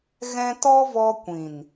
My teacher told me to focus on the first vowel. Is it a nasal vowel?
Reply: yes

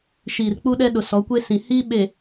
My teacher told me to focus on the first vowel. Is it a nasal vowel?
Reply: no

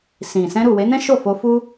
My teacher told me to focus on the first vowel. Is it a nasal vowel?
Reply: yes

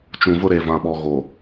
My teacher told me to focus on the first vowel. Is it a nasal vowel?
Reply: yes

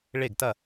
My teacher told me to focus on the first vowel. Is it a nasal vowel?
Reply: no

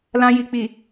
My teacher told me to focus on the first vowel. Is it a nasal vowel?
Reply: yes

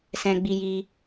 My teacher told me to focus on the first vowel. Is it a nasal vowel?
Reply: yes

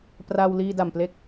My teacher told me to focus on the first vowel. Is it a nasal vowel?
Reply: no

